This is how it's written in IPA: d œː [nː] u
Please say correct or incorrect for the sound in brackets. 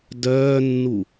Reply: correct